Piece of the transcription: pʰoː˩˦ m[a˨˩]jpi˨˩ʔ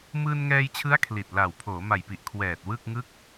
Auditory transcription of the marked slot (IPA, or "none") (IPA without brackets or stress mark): a˨˩